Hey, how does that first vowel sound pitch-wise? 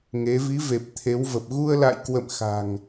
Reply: rising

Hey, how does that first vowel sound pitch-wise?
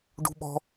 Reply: high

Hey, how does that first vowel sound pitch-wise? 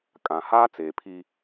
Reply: low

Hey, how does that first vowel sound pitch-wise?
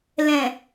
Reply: low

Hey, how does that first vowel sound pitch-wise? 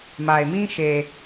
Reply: low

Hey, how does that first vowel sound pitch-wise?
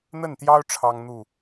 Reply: falling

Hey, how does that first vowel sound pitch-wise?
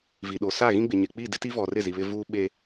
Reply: low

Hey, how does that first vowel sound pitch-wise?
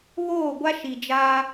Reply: falling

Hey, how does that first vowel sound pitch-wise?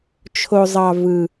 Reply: low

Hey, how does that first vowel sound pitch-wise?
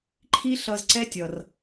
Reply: high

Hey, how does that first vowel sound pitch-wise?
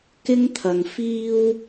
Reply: high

